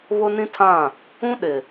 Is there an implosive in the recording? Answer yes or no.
yes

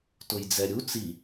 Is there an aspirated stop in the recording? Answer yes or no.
no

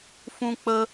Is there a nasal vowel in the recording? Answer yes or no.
yes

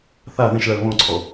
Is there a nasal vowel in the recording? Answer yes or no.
yes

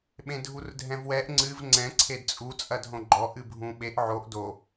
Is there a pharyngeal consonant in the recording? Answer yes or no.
yes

